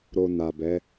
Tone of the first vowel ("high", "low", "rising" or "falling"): low